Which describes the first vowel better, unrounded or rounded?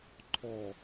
rounded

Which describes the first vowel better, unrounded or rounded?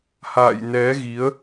unrounded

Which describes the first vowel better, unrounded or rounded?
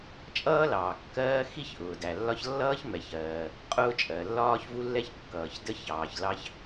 unrounded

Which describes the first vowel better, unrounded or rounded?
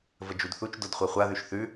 unrounded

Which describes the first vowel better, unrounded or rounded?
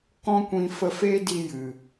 rounded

